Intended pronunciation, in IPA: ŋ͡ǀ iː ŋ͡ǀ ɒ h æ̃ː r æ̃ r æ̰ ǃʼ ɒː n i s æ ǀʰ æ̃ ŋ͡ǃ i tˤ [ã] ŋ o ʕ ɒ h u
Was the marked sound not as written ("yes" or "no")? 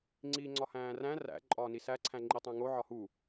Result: yes